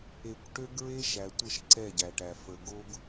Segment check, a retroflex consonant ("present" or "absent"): present